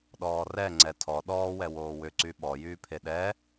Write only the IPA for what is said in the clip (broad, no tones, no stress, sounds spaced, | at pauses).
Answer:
ɗ ɔː r ɛ ŋ͡ǀ ɛ tʰ ɔ ɗ ɔː w ɛ w oː w ʏ ǀ y ɓ ɔ j yː pʰ e ɗ ɛ